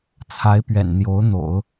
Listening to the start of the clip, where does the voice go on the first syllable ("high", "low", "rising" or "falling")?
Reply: rising